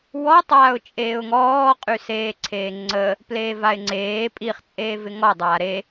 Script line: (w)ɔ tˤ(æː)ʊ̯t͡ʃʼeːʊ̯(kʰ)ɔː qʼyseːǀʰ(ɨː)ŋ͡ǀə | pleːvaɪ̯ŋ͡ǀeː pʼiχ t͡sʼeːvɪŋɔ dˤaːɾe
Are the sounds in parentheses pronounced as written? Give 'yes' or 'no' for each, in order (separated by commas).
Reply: yes, no, no, no